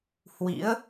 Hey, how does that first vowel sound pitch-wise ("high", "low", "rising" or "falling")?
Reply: rising